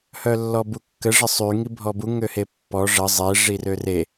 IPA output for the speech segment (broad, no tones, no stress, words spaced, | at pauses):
hœlːɔbukːə ʐəsˤy ŋibʱɔbu ŋøhepːɔ ʐə zˤe ʐirøre